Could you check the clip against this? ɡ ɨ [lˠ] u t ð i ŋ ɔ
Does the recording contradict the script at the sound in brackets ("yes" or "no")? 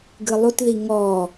no